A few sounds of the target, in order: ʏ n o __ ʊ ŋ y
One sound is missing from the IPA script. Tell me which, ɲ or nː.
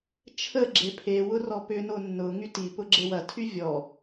nː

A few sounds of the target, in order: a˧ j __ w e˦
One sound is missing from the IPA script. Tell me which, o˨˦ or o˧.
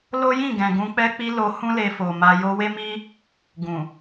o˧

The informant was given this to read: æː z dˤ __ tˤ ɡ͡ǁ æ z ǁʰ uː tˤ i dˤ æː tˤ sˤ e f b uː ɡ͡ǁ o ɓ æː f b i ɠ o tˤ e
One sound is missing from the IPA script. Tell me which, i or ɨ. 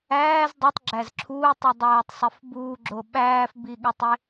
i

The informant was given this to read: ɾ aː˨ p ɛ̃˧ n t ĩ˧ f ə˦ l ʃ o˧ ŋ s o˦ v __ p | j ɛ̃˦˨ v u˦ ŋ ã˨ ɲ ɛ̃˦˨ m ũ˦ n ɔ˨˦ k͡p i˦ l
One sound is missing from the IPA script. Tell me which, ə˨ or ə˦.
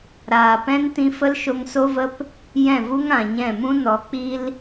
ə˦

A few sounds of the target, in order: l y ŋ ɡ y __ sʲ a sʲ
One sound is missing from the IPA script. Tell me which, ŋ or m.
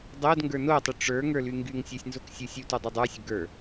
ŋ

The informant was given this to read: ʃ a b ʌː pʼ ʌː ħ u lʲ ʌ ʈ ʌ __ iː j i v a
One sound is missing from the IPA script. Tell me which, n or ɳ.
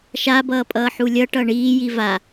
ɳ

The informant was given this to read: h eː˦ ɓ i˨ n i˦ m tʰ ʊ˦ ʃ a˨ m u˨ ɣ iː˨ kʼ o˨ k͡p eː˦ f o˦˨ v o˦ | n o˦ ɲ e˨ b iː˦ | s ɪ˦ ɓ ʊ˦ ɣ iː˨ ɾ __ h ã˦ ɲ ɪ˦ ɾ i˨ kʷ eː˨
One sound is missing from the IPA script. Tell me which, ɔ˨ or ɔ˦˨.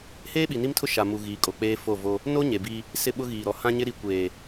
ɔ˨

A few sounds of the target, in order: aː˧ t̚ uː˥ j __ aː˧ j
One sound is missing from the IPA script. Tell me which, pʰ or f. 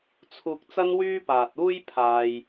pʰ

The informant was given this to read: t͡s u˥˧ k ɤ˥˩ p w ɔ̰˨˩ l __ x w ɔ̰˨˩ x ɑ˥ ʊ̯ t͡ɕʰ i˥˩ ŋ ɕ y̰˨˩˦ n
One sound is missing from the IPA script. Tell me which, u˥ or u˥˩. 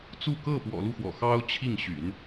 u˥˩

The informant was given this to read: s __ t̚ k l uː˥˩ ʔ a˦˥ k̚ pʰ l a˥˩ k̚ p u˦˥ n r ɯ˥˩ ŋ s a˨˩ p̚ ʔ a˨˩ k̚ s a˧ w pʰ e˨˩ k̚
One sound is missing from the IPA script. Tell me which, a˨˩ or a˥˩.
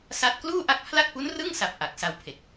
a˥˩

